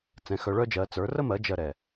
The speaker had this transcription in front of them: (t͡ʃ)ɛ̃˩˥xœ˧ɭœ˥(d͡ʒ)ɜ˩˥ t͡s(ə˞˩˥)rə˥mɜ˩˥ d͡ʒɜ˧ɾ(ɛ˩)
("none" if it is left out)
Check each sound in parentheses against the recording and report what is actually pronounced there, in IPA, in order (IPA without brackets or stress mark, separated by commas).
t͡s, d͡ʒ, ə˞˩˥, ɛ˩